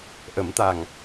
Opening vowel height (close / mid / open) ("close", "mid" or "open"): mid